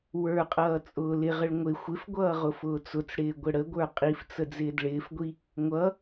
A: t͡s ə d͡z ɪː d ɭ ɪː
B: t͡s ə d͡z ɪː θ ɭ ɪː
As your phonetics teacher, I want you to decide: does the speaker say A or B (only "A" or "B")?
A